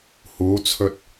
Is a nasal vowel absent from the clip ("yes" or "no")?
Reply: yes